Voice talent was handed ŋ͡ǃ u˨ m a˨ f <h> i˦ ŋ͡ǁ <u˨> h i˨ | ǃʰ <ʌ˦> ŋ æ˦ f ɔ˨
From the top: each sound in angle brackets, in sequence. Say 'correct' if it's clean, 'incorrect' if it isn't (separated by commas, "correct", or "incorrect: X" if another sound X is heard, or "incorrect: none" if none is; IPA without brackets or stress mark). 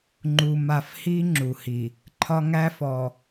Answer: correct, correct, incorrect: ɒ˦